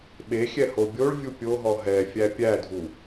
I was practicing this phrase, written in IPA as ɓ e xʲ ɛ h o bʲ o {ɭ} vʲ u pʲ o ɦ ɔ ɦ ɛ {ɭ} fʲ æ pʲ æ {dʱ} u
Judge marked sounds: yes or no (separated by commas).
yes, no, yes